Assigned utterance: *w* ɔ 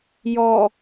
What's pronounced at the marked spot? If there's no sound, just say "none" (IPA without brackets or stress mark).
j